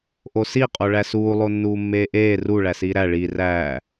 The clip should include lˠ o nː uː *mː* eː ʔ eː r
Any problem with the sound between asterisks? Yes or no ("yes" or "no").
no